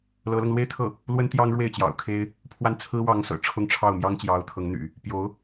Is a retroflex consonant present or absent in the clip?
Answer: present